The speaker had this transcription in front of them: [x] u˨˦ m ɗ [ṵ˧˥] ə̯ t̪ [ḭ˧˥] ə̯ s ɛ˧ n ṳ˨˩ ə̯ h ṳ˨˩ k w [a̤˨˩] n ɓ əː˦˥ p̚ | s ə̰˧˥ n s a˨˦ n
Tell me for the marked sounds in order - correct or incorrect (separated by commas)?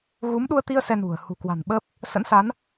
incorrect, incorrect, incorrect, correct